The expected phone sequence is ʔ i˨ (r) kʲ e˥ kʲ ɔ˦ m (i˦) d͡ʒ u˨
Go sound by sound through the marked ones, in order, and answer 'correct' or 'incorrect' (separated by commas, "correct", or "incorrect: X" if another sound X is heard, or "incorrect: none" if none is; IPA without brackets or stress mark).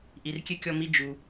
correct, correct